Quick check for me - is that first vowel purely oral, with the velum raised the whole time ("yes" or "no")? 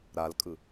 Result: yes